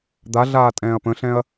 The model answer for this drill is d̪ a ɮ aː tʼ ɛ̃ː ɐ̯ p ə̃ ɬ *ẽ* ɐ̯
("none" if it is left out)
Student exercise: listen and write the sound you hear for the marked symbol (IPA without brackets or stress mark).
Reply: ɛ̃